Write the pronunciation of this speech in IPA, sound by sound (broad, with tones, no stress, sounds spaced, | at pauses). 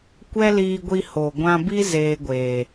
kʷ ɛ˦ l iː˧ ɡʷ i˧ h o˨ ɡʷ ã˧ b i˦ z eː˧ ɡʷ eː˨